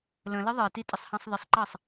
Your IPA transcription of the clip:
l ə̃ l ə ðˤ ɜ t i tʼ ə sˤ h ɑ̃ sˤ ð ə sˤ ǃ ɑ sˤ

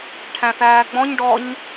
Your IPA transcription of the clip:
ʈʰ æ̃ θ æː ɡ͡b ɔ̃ ɲ ɖ ɔ ɲ

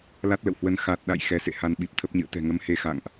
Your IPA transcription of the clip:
l a˦˥ t̚ l ə̰˧˨ w h w ə˧ n x a˨˩ t̚ ɗ a̰˧˨ j x ɛ˨˦ s ḛ˧˨ h a˧ n ɓ i˨˩ p̚ t̪ʰ ə˦˥ p̚ ɲ ɨ̰˧˨ ə̯ t̪ ɛ̤˨˩ ŋ ə˨˦ m h e˨˦ x a̰˧˨ ŋ ʔ

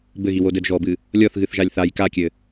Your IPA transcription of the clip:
b ɘ ɣ i w o d ɘ d ʒ ɔ b ɨ | lʲ ɔ θ ɣ ɨ θ ʒ a lʲ θ a j k a kʲ ɘ

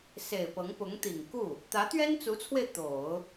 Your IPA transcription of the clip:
s e˨˩ ɪ̯ p ɤ˧˥ ŋ p ʊ˧˥ ŋ t̪ i˨˩ ŋ k u˥˩ | t̪ ä˧˥ t̪ ɥ ɛ˥ n t͡s u˧˥ t͡sʰ w e˧ ɪ̯ t̪ o˨˩˦ ʊ̯

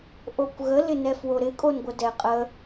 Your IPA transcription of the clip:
ʔ o kʷ ɣ ə l ɪ n ɛ f w o ɾ ɪ kʼ o n ɡʷ ə d ɛ qʼ ə

